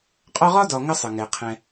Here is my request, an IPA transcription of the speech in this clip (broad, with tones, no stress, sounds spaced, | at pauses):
qʼ ɒ˦ ʁ ɒ˥ d ɒ˨ ŋ ə˥ sˤ ə˩ ŋ ɛ˩ qʰ ɛ̃˨